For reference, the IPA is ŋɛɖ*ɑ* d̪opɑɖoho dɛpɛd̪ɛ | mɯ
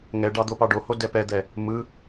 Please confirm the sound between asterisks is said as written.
yes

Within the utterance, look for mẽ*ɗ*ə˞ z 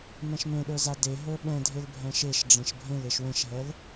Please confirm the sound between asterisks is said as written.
yes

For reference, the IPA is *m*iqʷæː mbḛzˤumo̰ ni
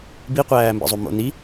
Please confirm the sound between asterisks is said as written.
no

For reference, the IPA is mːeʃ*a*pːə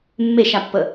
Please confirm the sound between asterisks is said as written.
yes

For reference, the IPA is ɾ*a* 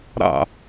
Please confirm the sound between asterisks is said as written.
no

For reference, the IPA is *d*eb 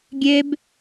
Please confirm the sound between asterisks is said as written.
no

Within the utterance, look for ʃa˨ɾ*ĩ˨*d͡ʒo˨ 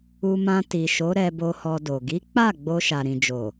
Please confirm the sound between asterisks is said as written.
yes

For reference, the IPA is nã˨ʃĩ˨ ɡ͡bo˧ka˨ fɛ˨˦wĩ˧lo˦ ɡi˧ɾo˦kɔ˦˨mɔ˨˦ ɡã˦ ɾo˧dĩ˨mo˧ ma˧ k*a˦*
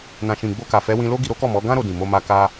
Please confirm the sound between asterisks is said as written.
yes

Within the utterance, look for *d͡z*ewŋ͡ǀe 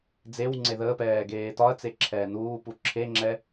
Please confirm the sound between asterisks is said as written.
yes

